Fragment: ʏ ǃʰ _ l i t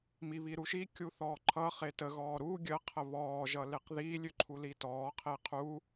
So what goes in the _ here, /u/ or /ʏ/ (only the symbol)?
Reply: u